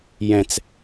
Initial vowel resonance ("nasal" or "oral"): nasal